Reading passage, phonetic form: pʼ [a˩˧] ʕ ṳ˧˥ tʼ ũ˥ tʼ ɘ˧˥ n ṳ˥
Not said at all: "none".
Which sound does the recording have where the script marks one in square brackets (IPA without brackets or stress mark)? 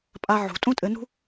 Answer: a˥